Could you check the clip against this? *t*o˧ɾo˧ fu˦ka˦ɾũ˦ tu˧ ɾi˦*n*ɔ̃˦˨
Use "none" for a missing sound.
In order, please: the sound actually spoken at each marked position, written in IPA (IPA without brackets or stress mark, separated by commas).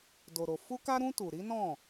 d, n